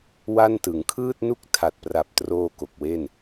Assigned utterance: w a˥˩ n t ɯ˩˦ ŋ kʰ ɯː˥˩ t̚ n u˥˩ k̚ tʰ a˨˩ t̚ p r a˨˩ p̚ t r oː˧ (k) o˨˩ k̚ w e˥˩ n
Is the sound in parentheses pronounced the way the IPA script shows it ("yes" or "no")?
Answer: yes